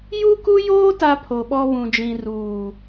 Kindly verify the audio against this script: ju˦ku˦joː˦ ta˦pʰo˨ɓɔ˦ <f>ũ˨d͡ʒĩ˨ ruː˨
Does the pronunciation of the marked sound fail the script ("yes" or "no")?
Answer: yes